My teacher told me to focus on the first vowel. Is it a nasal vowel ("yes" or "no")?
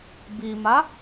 no